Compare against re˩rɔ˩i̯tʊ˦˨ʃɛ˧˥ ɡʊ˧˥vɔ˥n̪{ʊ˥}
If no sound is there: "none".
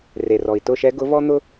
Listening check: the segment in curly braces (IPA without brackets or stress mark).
ʊ˥